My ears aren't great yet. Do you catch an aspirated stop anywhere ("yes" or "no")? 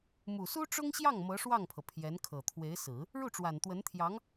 yes